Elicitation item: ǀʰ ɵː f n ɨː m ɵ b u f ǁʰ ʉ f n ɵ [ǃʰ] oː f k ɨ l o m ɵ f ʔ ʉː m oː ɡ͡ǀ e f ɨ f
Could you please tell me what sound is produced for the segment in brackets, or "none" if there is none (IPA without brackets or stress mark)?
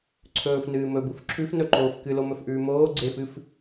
ǃ